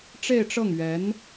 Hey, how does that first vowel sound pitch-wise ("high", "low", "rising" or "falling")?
falling